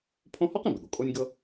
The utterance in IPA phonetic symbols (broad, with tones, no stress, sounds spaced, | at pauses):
pʰ õ˦ h ɔ˥ q ĩ˩ b ɪ˩ ɠ o˩ kʼ o˦ nʲ ɡ ɤ˦